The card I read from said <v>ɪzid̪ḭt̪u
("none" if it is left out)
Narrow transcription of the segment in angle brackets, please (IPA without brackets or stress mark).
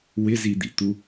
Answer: w